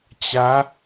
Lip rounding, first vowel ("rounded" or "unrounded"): unrounded